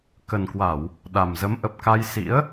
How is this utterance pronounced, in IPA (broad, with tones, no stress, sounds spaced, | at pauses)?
k ə˨˩ n k w a˧˩˨ w | ɗ a˨˩ m z ə˨˦ m ʔ ə˨˩ p̚ k a˧ j s ḭ˧˥ ə̯